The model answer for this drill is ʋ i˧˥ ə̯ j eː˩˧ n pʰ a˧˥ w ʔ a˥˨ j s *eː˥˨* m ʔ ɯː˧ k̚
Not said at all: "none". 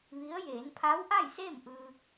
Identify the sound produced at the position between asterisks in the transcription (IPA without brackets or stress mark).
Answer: eː˥˨